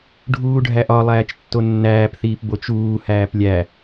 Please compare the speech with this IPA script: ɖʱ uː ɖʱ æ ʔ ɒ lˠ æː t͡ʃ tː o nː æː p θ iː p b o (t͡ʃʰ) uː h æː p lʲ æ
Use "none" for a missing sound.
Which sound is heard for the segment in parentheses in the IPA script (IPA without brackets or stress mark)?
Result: t͡ʃ